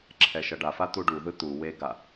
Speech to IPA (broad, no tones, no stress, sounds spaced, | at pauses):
ǁʰ ɛ ʃ ʌ ɖ a f a t̪ u ɖ u ð ɯ t̪ u w e ɡ a